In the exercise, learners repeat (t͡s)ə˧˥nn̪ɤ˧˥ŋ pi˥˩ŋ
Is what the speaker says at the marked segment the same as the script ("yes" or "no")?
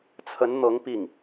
no